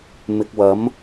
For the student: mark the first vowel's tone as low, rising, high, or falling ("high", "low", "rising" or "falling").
low